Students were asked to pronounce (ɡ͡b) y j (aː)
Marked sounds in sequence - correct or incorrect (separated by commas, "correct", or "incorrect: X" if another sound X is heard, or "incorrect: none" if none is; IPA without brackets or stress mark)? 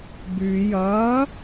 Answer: incorrect: b, incorrect: ɐː